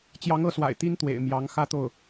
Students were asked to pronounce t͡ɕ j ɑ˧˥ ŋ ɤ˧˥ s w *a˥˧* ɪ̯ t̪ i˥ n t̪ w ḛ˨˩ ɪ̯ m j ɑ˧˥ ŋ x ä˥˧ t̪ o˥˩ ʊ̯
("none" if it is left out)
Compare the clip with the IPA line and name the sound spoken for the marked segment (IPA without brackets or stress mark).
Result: a̰˨˩